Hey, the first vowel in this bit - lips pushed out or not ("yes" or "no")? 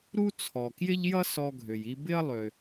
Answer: yes